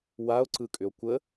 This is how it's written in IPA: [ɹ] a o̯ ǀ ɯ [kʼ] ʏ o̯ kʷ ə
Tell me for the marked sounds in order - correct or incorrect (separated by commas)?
incorrect, correct